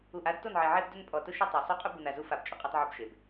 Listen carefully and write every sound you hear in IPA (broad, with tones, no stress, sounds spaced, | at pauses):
u˨ ʔ a˦ d t o˦˨ n ʕ e˨ ʕ e˦ b d ʊ˦ n pʼ ɔ˨ t ʊ˦ ʃ o˦ tˤ a˨ sˤ o˦ qʼ ʊ˦ b u˨ n a˨ z u˦ f a˨ b t͡ʃʼ ʊ˨ qʼ e˦ tˤ ʕ o˦ b ʃ e˨ b